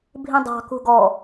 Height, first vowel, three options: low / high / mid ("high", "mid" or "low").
high